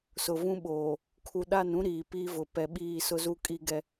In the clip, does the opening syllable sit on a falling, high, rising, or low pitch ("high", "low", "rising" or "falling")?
low